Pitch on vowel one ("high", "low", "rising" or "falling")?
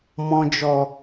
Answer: low